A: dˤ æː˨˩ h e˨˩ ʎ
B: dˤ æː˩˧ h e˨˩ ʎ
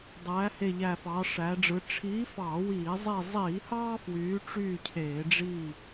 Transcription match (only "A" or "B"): B